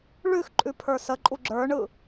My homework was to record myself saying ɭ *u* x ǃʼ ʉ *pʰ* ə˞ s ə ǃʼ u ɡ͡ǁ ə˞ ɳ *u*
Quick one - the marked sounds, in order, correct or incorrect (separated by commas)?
incorrect, correct, incorrect